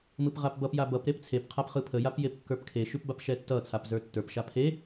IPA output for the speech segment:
m ɯ p ʁ a p b ʌ p j a b ʌ p ɾ e p t͡sʰ e p qʰ a p χ ɯ pʰ ə j a p j e p kː ə˞ p kʰ e ʃ ʉ p b a p ʃ ɛ tː ʌ t͡sʰ a p z ə˞ tː ə˞ p ʃ a pʰ e

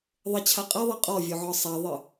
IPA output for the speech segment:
ðˤ ə t͡ɕʰ a qʼ e ðˤ e qʼ ɔ vʲ o ʕ ɔ sˤ a ðˤ ɨ

